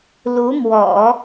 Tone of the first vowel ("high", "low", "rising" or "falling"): rising